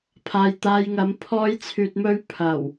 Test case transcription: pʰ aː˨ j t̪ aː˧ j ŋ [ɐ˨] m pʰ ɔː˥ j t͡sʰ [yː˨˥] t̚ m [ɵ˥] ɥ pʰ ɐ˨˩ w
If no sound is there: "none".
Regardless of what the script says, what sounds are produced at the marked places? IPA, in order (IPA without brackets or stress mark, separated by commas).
ɐ˨˥, yː˧, ɵ˥